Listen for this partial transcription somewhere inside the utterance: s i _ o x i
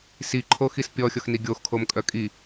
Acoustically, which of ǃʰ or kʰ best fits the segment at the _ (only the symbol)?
ǃʰ